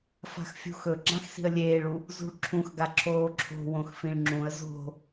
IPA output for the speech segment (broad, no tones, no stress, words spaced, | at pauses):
fa̤xfʲṳxɵ ɡ͡ǁãxsi̤ə̯lʲeːɭu | zṳɭǁʰũxɡa ǁʰoːǁʰo̤ wõxfĩɭŋ͡ǁũə̯ zo̤